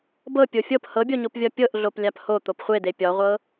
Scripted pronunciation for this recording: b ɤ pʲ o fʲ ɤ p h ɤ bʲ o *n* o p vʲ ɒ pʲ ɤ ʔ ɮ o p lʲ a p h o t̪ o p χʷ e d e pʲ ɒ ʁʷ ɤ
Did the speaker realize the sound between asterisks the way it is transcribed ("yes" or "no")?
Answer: no